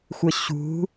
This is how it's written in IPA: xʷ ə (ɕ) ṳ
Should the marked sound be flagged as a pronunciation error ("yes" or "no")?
no